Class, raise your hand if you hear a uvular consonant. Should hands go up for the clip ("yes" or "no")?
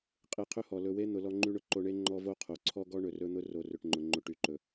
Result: yes